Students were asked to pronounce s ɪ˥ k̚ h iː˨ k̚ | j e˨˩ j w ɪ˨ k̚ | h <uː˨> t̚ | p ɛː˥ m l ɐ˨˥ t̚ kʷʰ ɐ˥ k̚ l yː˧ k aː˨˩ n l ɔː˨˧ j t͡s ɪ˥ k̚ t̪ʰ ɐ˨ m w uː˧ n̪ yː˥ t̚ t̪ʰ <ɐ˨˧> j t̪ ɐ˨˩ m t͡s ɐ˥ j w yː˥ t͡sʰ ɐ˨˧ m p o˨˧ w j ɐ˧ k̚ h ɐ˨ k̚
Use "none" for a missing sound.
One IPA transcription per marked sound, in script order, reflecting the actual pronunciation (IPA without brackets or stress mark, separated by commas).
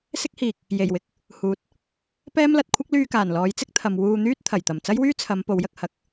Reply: uː˨, ɐ˨˩